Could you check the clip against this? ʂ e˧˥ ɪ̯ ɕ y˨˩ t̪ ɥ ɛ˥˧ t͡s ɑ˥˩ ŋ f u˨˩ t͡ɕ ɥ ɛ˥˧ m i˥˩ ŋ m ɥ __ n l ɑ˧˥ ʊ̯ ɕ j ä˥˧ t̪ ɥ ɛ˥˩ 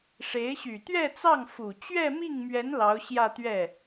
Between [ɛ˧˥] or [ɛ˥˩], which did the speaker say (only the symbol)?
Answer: ɛ˧˥